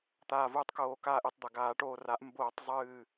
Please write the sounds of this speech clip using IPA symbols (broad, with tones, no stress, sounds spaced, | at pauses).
t̪ aː˧˩ v uː˧˩ tˤ k oː˧˩˧ k aː˧˩ ʔ ɨ˧˩˧ tˤ d̪ a˩ ɡ aː˧˩˧ ʈ oː˧˩ r a˩˥ ʔ m b oː˧˩˧ tˤ zˤ ɨː˧˩